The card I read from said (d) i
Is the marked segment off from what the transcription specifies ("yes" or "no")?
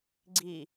yes